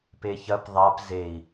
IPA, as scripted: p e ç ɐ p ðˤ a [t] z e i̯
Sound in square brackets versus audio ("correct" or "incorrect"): incorrect